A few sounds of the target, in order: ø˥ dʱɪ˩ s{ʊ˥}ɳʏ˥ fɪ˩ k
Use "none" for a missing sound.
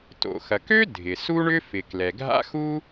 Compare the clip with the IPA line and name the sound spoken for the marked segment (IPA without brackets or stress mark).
u˥